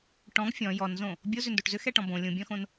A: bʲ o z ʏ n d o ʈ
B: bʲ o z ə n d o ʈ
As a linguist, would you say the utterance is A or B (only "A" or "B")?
A